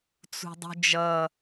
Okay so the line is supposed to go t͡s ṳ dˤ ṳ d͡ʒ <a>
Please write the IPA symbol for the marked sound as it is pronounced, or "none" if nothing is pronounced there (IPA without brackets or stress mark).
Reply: ʌ